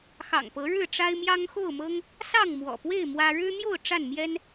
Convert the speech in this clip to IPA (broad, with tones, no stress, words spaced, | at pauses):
xɑ̰˨˩ŋpɤ˨˦ ɻɻ̩˥˨ʈ͡ʂa˦ɪ̯mjɑ˦ŋ xo˥˨ʊ̯mɤ˦ŋ | sɑ˥˨ŋmwɔ̰˨˩pwe˥˨ɪ̯ mwä˦ ɻɻ̩˦n̪jo˥˨ʊ̯ ʈ͡ʂa˥˨nmjɛ˦n